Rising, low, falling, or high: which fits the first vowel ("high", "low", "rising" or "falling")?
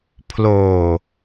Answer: low